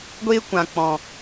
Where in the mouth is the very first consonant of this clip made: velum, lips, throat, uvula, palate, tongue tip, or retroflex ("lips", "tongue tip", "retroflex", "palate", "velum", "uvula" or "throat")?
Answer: velum